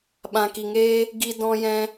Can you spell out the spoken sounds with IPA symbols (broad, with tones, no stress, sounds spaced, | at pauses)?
ɓ ã˨ k i˨ ŋ eː˦ | ɡ i˧ d ɔ̃˧ j ɛ̃˧